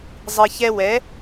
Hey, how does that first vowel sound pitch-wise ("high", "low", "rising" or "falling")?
low